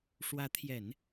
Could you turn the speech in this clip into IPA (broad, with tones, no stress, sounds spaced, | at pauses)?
ʂ w ä˧˥ t̪ʰ j ɛ˨˩˦ n